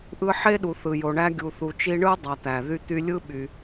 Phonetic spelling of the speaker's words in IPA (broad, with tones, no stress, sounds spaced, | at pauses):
ʔ ɯ˦ ħ e˥ ɗ u˨ θ ɯ˨ j o˨ ɳ æ˦ ɡʲ u˨ θ u˨ t͡ʃ i˦ ɳ ɯ˥ dˤ ɑ˨ t̪ æ˩ ð y˦ t̪ y˦ lʲ ɯ˥ ɓ y˨